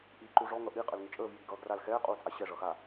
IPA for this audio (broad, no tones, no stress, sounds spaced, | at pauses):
ʔ iː ǃ u ʐ ɔ ŋ ʌ ʔ i qʼ ə l ŋ ɪ t͡ʃʼ əː v j iː ɡ ʌː ɡ r a l x ɛː qʼ uː t͡sʼ a ɕ ɛ ʐ ʌː x a